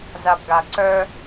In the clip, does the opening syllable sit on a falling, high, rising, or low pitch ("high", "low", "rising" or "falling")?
low